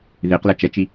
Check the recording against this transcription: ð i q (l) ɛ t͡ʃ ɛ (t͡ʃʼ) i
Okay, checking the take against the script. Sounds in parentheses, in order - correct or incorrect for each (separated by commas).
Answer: correct, incorrect